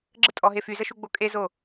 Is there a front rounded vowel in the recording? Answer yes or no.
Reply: yes